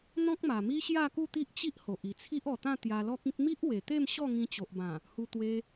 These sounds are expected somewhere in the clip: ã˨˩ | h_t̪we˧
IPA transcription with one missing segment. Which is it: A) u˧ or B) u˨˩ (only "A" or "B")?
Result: A